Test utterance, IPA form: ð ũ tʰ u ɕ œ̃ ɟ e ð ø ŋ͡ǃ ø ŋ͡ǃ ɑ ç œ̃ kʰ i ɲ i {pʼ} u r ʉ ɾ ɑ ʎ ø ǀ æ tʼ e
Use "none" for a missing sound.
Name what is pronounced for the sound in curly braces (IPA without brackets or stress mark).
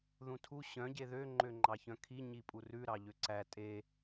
pʼ